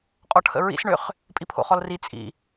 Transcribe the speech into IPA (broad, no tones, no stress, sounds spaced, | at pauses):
qʼ ɔ ʈʰ ə̰ ɹ ḭ s ɳ ʏ χ | pʼ i pʰ o̰ χ ɔ l r i t͡sʼ ḭ